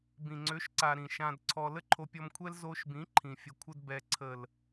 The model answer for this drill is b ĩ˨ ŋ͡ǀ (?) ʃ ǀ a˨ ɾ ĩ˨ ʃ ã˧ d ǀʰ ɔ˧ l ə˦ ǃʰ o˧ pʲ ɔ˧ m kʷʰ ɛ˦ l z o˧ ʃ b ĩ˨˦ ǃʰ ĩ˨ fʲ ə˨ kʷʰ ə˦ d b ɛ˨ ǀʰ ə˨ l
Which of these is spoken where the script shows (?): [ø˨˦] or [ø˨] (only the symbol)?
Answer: ø˨˦